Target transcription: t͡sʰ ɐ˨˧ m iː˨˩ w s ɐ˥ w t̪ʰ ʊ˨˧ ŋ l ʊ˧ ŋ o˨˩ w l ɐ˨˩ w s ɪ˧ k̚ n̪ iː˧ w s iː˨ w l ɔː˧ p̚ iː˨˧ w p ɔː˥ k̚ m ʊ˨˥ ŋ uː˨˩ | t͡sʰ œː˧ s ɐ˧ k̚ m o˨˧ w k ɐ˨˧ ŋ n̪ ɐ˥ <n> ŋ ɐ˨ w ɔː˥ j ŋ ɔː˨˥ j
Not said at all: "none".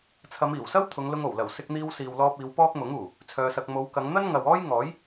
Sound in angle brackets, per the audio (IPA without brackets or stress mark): n